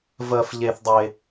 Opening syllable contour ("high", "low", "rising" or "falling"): low